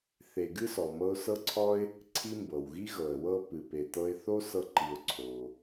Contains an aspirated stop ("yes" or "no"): yes